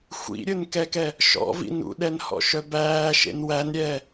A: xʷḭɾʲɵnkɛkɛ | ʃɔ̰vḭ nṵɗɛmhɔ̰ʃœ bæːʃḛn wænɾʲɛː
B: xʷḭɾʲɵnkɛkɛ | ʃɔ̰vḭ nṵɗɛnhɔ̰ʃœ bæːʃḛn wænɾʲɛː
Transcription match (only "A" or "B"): B